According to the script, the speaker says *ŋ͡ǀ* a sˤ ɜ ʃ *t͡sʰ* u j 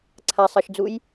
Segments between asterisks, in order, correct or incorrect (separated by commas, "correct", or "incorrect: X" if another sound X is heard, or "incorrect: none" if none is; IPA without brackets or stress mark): incorrect: ǀʰ, incorrect: d͡z